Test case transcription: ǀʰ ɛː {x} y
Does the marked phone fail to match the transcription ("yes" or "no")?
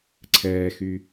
no